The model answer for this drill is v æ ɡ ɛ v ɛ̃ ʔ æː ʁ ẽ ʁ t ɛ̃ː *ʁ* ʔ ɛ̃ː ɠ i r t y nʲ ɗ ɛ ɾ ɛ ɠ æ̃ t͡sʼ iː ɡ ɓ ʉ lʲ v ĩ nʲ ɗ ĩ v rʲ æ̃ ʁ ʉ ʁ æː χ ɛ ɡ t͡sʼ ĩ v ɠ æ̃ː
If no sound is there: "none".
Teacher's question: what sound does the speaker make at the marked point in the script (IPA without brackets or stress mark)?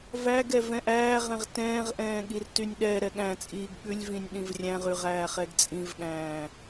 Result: ʁ